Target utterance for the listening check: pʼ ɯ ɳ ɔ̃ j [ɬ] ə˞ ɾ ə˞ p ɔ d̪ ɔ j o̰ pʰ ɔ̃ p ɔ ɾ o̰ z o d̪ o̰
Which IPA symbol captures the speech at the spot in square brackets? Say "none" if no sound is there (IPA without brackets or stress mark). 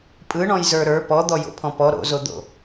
z